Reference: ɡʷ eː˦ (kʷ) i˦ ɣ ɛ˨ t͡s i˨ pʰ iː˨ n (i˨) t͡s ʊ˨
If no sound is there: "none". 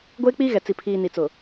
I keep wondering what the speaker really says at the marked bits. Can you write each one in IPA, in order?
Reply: k͡p, i˨

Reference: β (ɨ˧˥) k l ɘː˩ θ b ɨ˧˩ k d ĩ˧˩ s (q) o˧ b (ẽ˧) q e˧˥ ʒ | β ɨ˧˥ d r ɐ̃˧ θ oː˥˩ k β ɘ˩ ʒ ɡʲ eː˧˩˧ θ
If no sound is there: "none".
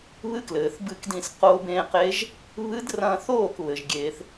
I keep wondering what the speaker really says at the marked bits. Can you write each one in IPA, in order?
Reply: ɨ˧˥, q, ẽ˧

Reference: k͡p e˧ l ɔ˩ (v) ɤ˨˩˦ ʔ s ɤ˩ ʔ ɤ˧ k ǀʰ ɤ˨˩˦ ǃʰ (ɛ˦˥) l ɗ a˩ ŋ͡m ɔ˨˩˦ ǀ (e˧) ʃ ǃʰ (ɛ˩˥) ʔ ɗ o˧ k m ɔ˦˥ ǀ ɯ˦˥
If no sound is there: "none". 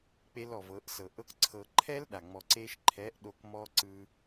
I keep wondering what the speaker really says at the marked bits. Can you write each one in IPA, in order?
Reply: v, ɛ˦˥, e˧, ɛ˩˥

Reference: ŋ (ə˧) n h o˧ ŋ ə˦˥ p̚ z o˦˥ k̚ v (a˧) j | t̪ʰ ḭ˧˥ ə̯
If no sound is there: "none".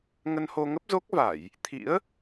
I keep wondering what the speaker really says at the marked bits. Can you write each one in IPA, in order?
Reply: ə˧, a˧˩˨

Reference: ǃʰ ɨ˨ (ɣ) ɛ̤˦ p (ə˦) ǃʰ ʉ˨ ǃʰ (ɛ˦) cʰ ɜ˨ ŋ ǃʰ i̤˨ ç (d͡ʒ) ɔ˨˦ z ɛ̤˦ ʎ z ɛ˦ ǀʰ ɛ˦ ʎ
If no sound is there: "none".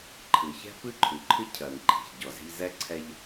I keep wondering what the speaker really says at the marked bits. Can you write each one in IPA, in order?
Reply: ç, ɨ˦, ɨ˦, ɟ

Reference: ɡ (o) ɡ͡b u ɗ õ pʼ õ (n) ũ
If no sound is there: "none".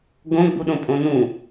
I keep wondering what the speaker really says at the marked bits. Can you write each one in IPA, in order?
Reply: õ, n

